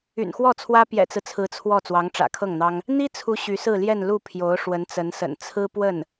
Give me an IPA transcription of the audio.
y̰˨˩ n x w ɔ˥˩ t͡sʰ w ä˥ p j ɛ̰˨˩ t͡s ɹ̩˦ t͡sʰ ɹ̩˧˥ t͡sʰ w ɔ˥˩ t͡s w ɑ˧˥ ŋ ʈ͡ʂ ä̰˨˩ kʰ ɤ˥˩ ŋ n̪ ɑ˥ ŋ | n̪ i˥ t͡sʰ u˧˥ ɕ y˧˥ s ɹ̩˥˧ l j ɛ˥˧ n l u˥˩ pʰ j o˧˥ ʊ̯ ʂ w ə˧˥ n t͡s ə˧˥ n s ə̰˨˩ n t͡sʰ ɹ̩˥ p w ə˥˩ n

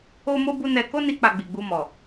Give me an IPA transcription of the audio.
o˦ m o˦ b u˦ n ɛ˧ k o˦ n i˧ k͡p a˧ ɡ͡b i˨ ɡ͡b u˧ m ɔ˨

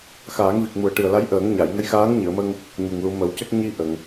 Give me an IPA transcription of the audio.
x aː˨˩˦ ŋ v i˨˩ k̚ m u˨˩ ə̯ ʈ ɨ˨˩ ə̯ l a˧˥ j ʔ əː˨˩˦ ŋ ɲ a˨˩˨ j ŋ ə˧˥ j x aː˧˥ ŋ ɲ ɨ˨˩˨ ə̯ m ə˧ ŋ | ɲ u˨˩ ŋ l u˨˩˦ m ə˨˩˦ w c ə˦˥ k̚ ɲ i˧ ʔ ə˨˩˨ ŋ

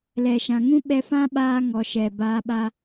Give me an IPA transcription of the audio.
l ɛ˨ ʃ ã˨ ŋ ũ˦ ɓ ɛ˧ f ã˦ ɓ aː˧ ŋ ɔ˨ ʃ ɛ˨ b aː˧ ɓ a˦

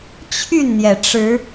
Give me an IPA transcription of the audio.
t͡ɕʰ y˥˨ n n̪ j ɛ˩ ʈ͡ʂ ɻ̩˨˦

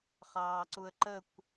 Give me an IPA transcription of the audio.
χ ɑː ǀ u ə̯ ǃ ə kʷ

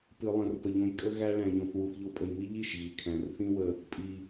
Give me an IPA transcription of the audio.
p ɨ˨ lˠ ə̃˨ r p ə˨ ʎ õ˧ j kʼ ə˦ ɣ æ˦ ɭ æ̃˧ ʎ õ˧ θ w u˨ θ ʎ o˧ pʼ ə˨ j m i˦ ʎ i˦˨ ʃ ɣ i˨ kʰ æ̃˨ r θ ĩ˦ w ə˧ | pʼ i˨

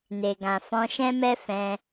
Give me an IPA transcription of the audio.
n e˨ ɡ ã˨ f ɔ̃˧ ʃ ɛ̃˦ m ɛ˦ f ɛ̃˧

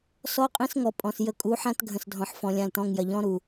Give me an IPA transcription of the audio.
s ɔ˦ qʼ ĩ˦ s ŋ ɔ˨ pʼ ɔ̃˨ s j ə˦˨ kʼ u˨˦ ħ ã˦ t ɡʱ ə̃˨ s dʱ ɔ̃˨ ħ f ɔ̃˨ lʲ ã˦˨ l t ɔ̃˦˨ ŋ j ɐ˨ ʎ ɔ̃˦ ɾ u˨

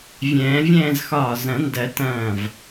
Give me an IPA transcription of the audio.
vʲ ɛ̃ː˨˩˦ vʲ ɛ̃ː˥˧ z x ɒː˧˩ z ɐ̃˨˩˦ n d ɜ˨˩˦ t ɐ̃ː˧˩ v

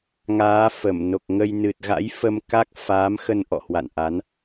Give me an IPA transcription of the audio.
ŋ aː˨˦ f ə˧˩ m n o˨˩ k̚ ŋ ə˧ j n ɨ˨˩ t̚ ɣ a̰˧˥ j f ə˧ m k a˦˥ k̚ f aː˨˦ m x ə˧ n ʔ ɔ̰˧˨ h w a̰˧˨ n ʔ a˨˦ n

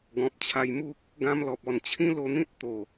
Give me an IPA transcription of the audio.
ɡ ɔ̃˨ p̚ t͡ɕʰ a˧ j m u˦ k̚ | ɡ ã˧ m l ɔ˨ p̚ ɔ˨˩ n t͡ɕʰ ĩ˦ l o˧ n̪ ĩ˦ t̚ t̪ o˨˩

